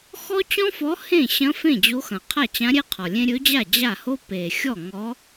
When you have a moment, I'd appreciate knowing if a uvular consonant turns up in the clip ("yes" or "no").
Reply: yes